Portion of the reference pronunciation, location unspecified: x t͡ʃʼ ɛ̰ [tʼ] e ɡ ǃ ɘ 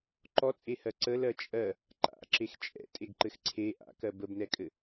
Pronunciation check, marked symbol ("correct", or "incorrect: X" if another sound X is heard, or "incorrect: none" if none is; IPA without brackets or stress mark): correct